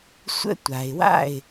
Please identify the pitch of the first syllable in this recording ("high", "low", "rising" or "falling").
high